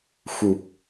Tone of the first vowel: low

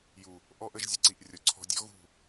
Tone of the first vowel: low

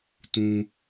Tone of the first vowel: high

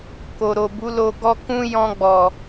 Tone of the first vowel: low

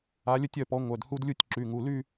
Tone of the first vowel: rising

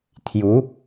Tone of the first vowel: rising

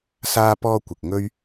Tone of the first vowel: high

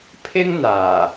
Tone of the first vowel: high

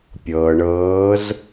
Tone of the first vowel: low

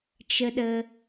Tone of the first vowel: low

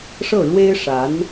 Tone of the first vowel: falling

